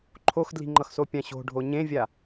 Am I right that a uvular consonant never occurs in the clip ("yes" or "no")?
yes